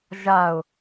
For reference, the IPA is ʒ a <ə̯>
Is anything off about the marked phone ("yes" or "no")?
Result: yes